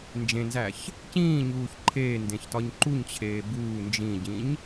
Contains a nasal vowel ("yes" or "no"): yes